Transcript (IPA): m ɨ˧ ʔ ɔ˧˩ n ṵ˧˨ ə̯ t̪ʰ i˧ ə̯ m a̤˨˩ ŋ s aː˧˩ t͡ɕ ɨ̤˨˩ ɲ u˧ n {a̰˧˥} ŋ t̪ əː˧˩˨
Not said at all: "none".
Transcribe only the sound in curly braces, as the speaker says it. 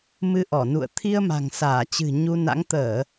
a̰˧˥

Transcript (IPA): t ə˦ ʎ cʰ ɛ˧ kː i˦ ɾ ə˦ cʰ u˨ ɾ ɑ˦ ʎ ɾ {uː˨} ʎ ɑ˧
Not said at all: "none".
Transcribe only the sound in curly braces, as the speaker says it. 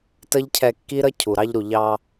u˨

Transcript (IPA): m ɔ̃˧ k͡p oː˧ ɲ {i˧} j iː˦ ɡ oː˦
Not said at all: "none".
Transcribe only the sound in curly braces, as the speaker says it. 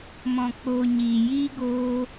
iː˧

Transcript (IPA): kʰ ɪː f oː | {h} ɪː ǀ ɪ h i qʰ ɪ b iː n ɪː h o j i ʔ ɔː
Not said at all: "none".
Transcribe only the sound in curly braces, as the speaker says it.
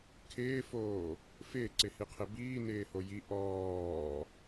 f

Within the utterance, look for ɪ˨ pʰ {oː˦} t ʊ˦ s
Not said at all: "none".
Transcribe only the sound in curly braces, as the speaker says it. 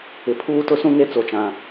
uː˦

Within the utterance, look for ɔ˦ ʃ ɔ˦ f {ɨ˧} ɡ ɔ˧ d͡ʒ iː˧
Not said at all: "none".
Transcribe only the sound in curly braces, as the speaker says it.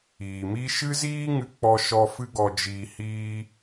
ɨ˦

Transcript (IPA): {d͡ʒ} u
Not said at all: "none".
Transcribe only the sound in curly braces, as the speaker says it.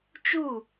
t͡ʃ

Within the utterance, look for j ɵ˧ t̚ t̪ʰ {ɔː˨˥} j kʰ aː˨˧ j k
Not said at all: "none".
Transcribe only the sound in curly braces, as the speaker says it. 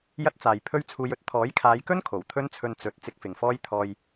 ɔː˨˥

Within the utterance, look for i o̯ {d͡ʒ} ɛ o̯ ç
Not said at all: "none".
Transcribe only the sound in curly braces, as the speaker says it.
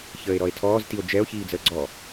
d͡ʒ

